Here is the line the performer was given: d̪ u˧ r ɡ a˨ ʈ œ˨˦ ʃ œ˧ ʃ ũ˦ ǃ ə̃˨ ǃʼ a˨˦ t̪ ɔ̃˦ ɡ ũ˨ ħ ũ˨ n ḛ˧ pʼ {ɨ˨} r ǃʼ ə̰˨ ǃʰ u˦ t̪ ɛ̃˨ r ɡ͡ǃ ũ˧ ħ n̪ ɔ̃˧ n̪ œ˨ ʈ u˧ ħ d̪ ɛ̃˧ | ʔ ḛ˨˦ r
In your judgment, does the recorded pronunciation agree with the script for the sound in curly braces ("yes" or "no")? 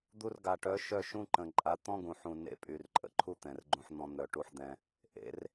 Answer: no